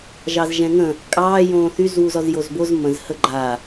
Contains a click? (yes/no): yes